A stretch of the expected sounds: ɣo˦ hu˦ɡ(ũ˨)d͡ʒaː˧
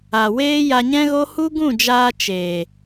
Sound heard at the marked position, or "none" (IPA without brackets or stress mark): ũ˦˨